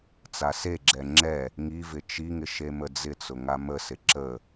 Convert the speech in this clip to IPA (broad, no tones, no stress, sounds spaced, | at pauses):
t͡s a s e ɡ͡ǁ ɛ ŋ͡ǁ ɛ | ŋ i v ɪ t͡ʃ i ŋ ɪ ʃ e m ə d͡z ɪ t͡s ʊ ŋ a m ə s ɪ ǁ ə